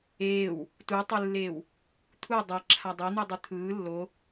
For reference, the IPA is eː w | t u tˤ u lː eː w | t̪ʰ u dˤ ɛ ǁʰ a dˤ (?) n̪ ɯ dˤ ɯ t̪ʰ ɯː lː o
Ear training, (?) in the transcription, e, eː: e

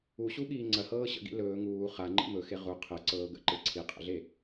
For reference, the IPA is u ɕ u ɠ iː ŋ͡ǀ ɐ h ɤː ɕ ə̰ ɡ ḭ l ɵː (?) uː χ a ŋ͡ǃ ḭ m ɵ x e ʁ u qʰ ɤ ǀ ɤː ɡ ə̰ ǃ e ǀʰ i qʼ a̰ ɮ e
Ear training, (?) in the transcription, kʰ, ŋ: ŋ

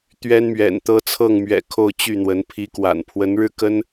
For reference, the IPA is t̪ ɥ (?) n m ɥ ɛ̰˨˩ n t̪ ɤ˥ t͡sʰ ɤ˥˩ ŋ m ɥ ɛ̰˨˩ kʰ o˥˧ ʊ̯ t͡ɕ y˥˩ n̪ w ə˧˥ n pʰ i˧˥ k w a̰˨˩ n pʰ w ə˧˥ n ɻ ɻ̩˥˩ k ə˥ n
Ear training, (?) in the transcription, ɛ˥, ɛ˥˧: ɛ˥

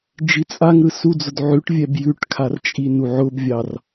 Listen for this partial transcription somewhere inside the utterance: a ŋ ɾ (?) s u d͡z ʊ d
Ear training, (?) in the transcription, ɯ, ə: ɯ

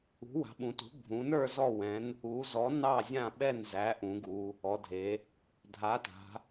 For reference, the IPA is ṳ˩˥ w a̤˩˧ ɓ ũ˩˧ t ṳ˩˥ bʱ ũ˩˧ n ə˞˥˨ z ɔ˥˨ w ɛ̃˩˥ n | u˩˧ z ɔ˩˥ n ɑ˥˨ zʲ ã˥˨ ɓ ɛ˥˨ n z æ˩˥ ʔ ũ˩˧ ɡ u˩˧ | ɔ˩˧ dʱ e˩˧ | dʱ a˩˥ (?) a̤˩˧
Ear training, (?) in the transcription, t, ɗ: t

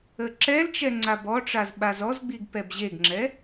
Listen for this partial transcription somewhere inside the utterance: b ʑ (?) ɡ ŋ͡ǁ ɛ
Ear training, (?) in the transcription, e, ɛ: e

